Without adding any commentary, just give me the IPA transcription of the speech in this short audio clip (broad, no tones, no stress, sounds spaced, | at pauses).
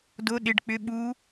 d o ɗ ɪ ɖ k͡p ʏ ɓ u